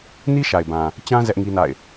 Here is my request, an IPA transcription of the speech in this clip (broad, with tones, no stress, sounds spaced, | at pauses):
n i˦ ʃ a˨ ɪ̯ b ã˨ | t͡ɕ ã˦ z ɛ˦ ʔ ŋ i˦ n a̰˦˨ ɪ̯